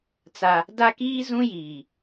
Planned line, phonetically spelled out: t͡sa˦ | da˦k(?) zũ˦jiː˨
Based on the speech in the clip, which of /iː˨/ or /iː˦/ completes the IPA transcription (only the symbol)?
iː˦